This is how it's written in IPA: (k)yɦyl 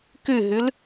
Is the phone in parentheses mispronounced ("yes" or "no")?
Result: no